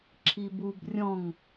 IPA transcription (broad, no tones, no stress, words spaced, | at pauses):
ǁʰibub rʲɔ̃ŋ